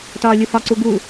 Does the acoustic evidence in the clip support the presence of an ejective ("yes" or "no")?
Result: no